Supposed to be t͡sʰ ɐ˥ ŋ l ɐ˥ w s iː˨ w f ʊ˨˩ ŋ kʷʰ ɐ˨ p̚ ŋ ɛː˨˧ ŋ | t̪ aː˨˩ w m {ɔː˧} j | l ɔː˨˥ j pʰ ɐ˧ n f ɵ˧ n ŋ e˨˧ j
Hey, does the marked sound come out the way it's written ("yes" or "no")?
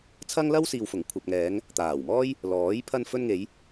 no